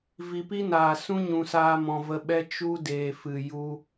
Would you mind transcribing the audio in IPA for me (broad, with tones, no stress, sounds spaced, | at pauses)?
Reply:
v i˨ p i˦ n aː˨ s ũ˦ ɲ ũ˨ s aː˧ m ɔ̃˨ v ə˧ ɓ ɛ˦ t͡ʃ u˧ d eː˨ f ɨ˨ j u˧